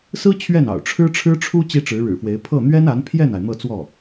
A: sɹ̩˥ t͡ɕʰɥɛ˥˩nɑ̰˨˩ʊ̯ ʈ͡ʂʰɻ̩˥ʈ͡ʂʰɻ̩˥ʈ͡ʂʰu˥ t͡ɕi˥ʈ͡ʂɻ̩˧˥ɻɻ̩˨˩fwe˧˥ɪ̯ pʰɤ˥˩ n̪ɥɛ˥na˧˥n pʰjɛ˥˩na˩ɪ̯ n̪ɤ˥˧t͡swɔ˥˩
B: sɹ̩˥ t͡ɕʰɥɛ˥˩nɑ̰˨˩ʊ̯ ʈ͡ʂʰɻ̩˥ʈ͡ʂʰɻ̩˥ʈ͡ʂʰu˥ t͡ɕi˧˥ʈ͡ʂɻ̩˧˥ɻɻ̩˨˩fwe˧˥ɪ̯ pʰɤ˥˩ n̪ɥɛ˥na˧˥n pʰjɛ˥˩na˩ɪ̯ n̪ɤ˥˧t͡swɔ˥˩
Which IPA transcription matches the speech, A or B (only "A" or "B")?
A